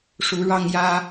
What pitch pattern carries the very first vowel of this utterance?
rising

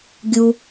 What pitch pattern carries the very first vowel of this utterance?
high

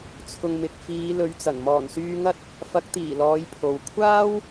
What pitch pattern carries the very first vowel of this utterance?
low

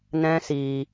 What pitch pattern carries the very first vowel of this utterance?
high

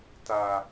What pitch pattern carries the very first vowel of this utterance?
low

